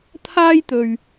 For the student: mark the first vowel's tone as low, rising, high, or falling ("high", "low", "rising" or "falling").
high